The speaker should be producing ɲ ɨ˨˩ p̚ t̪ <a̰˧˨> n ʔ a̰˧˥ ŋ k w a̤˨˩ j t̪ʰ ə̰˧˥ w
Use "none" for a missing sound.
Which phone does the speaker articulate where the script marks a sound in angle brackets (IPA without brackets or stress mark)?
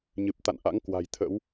a̰˧˨